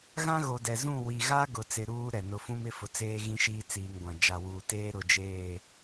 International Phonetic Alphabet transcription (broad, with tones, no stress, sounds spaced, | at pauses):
ɣ ã˦ ɣ o˨ d ɛ˨ z ũ˦˨ w i˨ ɣ a˦ ɡ ʊ˨ t͡s ɪ˨ ɾ uː˦ ɾ ɛ˨ n ʊ˨ f ũ˦ m ɪ˦ f ʊ˨ t͡s eː˦ ɣ ĩ˦ ʃ iː˦ t͡s iː˨ ŋ ɡʷ ã˨ d͡ʒ a˨ w uː˨ t eː˦ ɾ ʊ˨ d͡ʒ eː˦˨